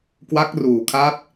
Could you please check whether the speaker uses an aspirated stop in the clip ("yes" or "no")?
yes